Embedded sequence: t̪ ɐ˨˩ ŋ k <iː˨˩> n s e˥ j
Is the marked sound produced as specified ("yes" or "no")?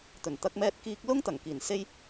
yes